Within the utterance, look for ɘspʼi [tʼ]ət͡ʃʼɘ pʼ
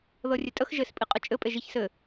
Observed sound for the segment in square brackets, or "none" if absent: qʼ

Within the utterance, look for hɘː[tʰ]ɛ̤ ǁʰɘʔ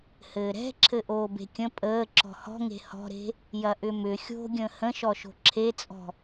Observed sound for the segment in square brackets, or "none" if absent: ɾ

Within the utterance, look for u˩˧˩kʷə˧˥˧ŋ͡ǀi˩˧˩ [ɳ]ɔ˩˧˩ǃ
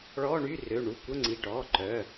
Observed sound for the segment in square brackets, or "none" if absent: ʈ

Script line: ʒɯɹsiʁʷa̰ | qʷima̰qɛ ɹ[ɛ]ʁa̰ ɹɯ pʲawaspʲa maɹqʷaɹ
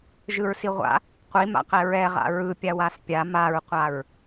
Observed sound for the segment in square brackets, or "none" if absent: ɛ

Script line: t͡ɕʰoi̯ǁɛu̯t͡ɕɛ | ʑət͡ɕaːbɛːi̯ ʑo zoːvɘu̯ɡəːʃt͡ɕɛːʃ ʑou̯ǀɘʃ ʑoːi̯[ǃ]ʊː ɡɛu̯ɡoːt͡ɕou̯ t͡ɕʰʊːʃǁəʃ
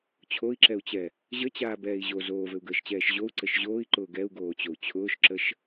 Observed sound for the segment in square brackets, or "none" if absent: ǃ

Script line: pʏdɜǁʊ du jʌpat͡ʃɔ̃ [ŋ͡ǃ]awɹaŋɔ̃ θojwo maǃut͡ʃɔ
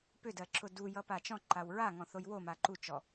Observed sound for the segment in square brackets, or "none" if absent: ǃ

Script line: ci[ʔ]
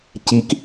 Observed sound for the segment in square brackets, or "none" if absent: k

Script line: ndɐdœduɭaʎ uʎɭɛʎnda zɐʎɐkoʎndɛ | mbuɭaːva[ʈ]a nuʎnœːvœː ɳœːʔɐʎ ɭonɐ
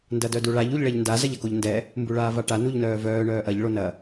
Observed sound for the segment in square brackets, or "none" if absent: ʈ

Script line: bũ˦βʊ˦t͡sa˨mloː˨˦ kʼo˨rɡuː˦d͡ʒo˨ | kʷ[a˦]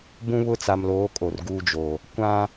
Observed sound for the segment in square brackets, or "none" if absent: ã˦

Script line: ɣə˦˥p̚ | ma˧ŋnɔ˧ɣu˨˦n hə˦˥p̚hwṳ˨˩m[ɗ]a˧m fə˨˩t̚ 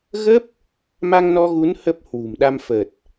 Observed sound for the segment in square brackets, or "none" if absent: ɗ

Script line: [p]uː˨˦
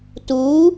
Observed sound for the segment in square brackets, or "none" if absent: t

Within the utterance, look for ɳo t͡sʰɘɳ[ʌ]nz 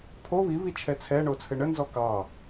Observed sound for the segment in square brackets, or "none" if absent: ə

